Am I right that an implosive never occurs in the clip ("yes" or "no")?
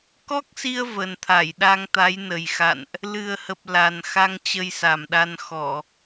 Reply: no